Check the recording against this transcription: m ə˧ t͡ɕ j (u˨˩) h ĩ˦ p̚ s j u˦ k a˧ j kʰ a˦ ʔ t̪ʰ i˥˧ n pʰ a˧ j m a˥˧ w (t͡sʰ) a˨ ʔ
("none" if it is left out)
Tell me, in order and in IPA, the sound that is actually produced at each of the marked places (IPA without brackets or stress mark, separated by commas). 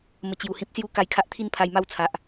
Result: u˨˩, t͡sʰ